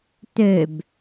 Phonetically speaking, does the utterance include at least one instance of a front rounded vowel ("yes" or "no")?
yes